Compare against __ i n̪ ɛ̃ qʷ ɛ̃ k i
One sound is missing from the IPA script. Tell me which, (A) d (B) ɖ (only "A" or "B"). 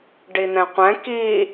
B